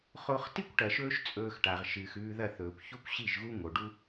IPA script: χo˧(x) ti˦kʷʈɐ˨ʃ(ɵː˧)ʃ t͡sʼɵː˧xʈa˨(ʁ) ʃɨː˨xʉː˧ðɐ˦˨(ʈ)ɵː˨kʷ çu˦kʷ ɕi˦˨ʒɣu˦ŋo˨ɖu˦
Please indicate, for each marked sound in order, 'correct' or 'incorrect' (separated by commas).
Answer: incorrect, correct, correct, incorrect